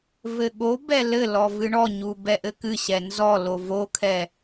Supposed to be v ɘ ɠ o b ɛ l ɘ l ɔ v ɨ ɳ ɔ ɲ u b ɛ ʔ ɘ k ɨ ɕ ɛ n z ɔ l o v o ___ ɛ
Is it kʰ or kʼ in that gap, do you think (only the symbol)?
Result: kʰ